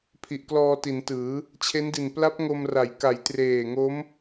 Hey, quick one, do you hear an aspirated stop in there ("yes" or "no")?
yes